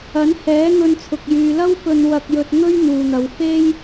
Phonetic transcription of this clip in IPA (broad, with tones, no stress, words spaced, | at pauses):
ɐ˨˥nhɛː˨˥ŋɵ˧nt͡sʰʊ˨k̚ jyː˨lɐ˥w pɵ˧nwɐ˧k̚jɵ˧t̚ ŋɵ˥ɥn̪uː˨n̪ɐ˨˧w fe˥j